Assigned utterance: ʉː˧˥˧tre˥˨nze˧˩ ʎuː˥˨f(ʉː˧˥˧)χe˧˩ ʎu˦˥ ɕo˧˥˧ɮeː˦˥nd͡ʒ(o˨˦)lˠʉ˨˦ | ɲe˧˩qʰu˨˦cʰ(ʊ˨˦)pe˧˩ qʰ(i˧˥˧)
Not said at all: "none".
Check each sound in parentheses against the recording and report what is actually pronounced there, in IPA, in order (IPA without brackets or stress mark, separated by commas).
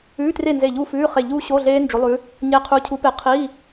ʉː˧˥˧, o˨˦, u˨˦, i˧˥˧